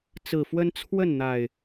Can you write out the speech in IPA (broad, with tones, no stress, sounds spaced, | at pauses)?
t͡s ɹ̩˨˩ f w ə˦ n t͡sʰ w ə˥˨ n n̪ a˨˩ ɪ̯